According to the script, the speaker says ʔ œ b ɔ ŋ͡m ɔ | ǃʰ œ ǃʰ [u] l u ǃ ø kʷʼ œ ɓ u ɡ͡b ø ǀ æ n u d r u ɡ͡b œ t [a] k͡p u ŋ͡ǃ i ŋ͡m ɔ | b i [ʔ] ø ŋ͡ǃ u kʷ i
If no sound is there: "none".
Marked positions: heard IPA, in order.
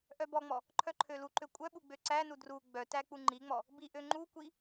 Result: ø, æ, ʔ

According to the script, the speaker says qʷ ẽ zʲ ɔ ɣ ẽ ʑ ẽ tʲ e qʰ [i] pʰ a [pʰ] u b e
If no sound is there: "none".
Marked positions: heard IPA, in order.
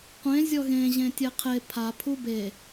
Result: e, pʰ

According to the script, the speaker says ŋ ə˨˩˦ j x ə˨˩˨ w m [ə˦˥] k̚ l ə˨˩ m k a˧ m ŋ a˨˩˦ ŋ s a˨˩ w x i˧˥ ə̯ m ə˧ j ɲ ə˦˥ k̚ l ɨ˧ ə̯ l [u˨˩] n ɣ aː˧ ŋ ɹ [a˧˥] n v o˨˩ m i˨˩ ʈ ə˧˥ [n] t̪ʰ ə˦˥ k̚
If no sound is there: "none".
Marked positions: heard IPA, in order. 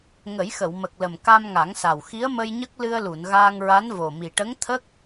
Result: ə˨˩, u˨˩˨, a˧˥, ŋ

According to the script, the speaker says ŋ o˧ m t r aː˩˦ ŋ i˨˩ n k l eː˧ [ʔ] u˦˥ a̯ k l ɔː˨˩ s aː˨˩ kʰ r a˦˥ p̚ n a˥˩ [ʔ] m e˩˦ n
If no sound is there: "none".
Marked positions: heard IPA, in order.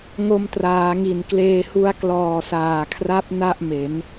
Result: h, ʔ

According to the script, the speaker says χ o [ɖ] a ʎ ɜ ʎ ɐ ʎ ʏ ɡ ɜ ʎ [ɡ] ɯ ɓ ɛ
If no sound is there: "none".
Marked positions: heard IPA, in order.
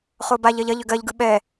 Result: b, ɡ

